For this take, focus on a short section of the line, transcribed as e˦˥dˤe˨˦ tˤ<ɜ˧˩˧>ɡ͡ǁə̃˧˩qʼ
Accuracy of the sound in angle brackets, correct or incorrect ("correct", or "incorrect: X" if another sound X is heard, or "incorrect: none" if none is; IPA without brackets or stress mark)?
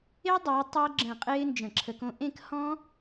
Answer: incorrect: ɜ˦˥